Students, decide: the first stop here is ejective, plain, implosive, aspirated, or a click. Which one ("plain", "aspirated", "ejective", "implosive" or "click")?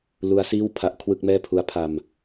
aspirated